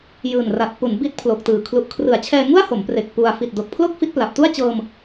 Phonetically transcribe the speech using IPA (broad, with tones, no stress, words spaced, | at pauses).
jɯː˨˩nra˨˩t̚pu˩˦n bi˦˥t̚pʰlo˨˩k̚tɯː˨˩ kʰlu˨˩ʔkʰrɯ˩˦a̯t͡ɕʰɛː˧ ŋu˥˩a̯ho˩˦mpre˨˩k̚ pu˧a̯ fi˨˩t̚do˨˩k̚pʰlo˥˩k̚ fi˦˥t̚pla˨˩p̚tu˥˩a̯t͡ɕɤː˧m